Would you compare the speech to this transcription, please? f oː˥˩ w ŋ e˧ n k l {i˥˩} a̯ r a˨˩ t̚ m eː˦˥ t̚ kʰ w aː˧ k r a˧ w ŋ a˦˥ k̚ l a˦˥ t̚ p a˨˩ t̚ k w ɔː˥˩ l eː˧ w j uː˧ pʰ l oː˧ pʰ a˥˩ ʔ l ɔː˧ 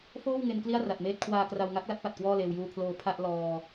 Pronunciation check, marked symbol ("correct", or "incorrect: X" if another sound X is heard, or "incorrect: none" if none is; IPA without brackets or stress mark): correct